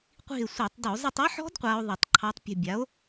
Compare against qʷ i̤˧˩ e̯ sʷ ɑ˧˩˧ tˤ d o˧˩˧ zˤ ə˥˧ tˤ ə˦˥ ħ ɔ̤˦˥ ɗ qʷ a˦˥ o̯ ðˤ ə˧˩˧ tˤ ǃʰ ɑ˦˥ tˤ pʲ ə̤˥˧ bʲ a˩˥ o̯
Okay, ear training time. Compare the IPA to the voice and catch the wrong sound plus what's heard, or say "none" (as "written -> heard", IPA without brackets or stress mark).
ɗ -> d